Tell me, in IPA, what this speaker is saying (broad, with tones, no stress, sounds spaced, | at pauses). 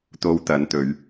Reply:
t̪ o˧ w t̪ ɐ˨˧ n t̪ ɵ˨˧ ɥ